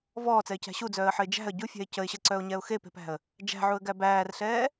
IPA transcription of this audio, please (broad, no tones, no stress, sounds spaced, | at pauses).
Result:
v ɔː t͡s ɛ ɪ̯ c æ̤ ɕ u d͡z œː ə̯ ħ ɘ ɪ̯ d͡ʒ æ̤ ə̯ ɟ u fʲ æ̤ ɪ̯ c ə ɪ̯ ɕ ɘ ǀ œ ʊ̯ ɲ ɛ ʊ̯ x e p e̤ p æ̤ ə̯ | d͡ʒ æ̤ ʕ u ə̯ ɡ æ b æː r ɬ ɛː